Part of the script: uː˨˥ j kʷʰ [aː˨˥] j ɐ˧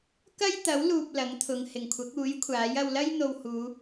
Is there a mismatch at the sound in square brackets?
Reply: no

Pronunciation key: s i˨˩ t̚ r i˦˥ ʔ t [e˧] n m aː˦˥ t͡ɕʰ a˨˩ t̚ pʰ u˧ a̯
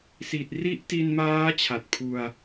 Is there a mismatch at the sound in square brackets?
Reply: yes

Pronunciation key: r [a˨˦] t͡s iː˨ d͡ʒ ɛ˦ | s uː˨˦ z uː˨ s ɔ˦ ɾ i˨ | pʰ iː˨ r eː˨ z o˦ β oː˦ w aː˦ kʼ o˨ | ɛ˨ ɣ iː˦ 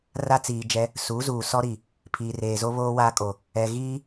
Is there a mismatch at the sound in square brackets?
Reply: yes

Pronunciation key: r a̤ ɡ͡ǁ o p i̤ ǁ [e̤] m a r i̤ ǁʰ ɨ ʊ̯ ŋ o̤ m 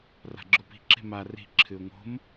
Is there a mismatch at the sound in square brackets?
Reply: no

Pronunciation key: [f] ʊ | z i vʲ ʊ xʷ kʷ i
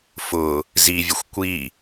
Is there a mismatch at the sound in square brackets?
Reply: no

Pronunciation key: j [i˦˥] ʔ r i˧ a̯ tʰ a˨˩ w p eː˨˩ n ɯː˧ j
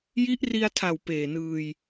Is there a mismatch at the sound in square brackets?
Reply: no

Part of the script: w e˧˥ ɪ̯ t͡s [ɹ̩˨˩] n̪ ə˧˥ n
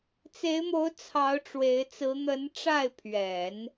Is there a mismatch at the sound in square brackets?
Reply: yes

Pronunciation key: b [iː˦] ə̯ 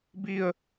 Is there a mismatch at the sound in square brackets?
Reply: no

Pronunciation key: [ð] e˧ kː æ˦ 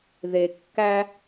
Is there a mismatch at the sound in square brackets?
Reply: no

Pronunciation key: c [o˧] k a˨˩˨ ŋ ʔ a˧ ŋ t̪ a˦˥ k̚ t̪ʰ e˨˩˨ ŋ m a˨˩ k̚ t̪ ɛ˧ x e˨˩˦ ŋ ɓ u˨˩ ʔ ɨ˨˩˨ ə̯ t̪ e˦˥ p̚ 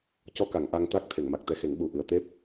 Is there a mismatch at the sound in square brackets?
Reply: yes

